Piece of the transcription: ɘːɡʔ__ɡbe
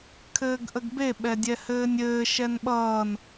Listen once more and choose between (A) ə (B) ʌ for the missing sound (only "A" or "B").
A